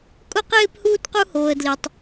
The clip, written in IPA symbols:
kʼʊ˦qɪː˦p huː˦tqu˦hoː˧ə̯ dli˧tˤ

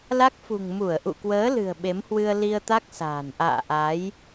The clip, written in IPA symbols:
la˦˥k̚fṳ˨˩ŋ mu˧˩ə̯ʔṵ˧˨kwəː˨˦ lɨ̤˨˩ə̯ɓe˨˦mhwɨ˧ə̯ li˧ə̯t̪a˦˥k̚ sa̤ː˨˩n ʔa̰ː˧˨ʔa˨˦j

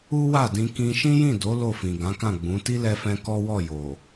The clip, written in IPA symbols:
u˦wa˦˨dĩ˧ kĩ˧ʃĩ˦jĩ˦˨ do˨˦ lo˦˨fĩ˨ ɡã˨˦kã˦˨ɡ͡bũ˨˦ ti˦lɛ˧fɛ̃˧ kɔ˦wɔ˦˨jo˨

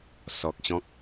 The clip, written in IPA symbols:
sɔ˨k̚ɕɔ̃˦k̚

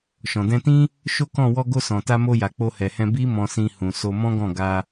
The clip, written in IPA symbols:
ʃɔ̃˨dɛ̃˧tĩ˦ | ʃo˦kɔ̃˦˨ wɔ˧ɡo˧ sɔ̃˨ta˧mo˧ja˨ k͡po˧hɛ˨hɛ̃˧ bi˦ mɔ̃˧sĩ˧ hũ˨ so˧mɔ̃˦ɡɔ̃˦˨ ɡa˧

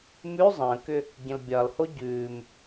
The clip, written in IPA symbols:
mʉ zˤə̃ːkʏ | ɟə̃lbʲɒlho ɟʉːm

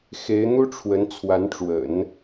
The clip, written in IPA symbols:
xe˧˥ɪ̯n̪u˥ʈ͡ʂʰwə˧˥n t͡sʰwa˧˥nʈ͡ʂwə̰˨˩˦n

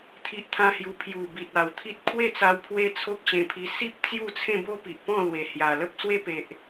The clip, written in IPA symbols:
t̪ʰi˦ʔt̪ʰã˦hju˧ pʰju˨˩bi˨t̚ a˨˩wt̪ʰi˦t̚ kʰwe˥˧t͡sa˧w pʰwe˦t͡sʰo˦k̚ɕẽ˧pʰi˧ si˦p̚ t͡sju˥˧t͡sʰẽ˥˧bo˦ pi˨ʔpɔ̃˥˧lwe˨˩ hja˨˩ lə˦p̚swe˥˧pe˨ʔ

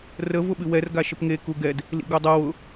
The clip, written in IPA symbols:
rə vʊɓɨwɛr ɡaʃəpŋe kuɡɛd | lḭɡudˤɤw ʊ

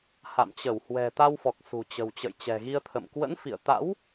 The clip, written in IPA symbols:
ha̰˧˨mt͡ɕə˧˩w hwɛ̤˨˩t̪a˧wfɔ˨˩k̚ sṳ˨˩t͡ɕə̤˨˩w t͡ɕə̰˧˨jt͡ɕɛ̤˨˩ɣi˧ə̯t̪ʰə̰˧˨m kwə̰˧˥nfḭ˧˨ə̯t̪a̰˧˥w

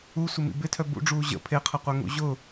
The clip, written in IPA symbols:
u sʷɪmḭbɪtʰœ bṵɖ͡ʐuː ʑə̰ pʰeqʰɐqʷœ ŋṵʑʊ

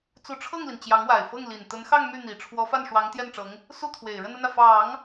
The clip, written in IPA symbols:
t͡su˧˥ʈ͡ʂʰɤ˥˩ŋli˩n t͡ɕjɑ˧˥ŋwa˨˩ɪ̯fɤ˥˩ŋ li˨˩n t̪ə˧˥nxɑ˥˧ŋ my˥˩n̪i˨˩ ʈ͡ʂʰwɔ˧˥fa˥˩n ʂwɑ˧˥ŋt̪jɛ˥˩nʈ͡ʂɤ˧˥ŋ | su˥˩ t̪ʰwe˨˩ɪ̯ɻə˥˧n ə˥˩nä˩ fɑ˨˩˦ŋ

